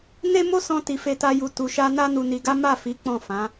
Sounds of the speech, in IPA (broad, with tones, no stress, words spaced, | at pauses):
ne˦mo˦ sɔ̃˧ ti˨ fe˧ta˧ ju˧ tu˨ʃa˧ na˦nu˧ni˧ɡa˦ ma˦˨fi˨˦ k͡pɔ̃˦˨fã˨˦